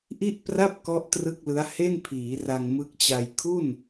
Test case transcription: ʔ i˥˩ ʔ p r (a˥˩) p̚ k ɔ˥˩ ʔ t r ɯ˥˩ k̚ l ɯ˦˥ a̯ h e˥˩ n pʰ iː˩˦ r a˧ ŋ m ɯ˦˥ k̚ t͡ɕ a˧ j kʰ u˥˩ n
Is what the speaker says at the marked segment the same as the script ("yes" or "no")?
yes